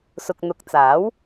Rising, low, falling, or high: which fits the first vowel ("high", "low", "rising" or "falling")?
low